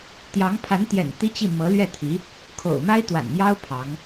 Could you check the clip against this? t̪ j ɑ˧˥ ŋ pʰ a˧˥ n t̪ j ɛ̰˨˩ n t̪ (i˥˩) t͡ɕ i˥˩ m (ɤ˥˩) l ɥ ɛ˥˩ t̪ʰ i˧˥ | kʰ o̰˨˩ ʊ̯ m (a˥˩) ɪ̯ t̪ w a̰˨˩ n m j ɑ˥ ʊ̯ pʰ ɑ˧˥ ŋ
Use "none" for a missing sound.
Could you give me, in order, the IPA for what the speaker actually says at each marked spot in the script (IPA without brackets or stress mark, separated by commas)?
i˥, ɤ˧˥, a˥